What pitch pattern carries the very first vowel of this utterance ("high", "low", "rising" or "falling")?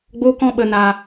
high